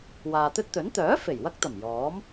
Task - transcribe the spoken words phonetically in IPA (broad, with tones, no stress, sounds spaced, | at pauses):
w aː˨ t̪ ɵ˥ t̚ t̪ ɵ˨˥ n t̪ œː˨˥ f e˨˩ j w ɐ˧ k̚ t̪ ɐ˨˩ m j ɔː˨˥ m